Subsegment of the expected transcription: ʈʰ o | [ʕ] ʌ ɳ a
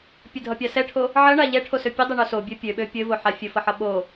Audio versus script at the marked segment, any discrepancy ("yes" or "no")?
no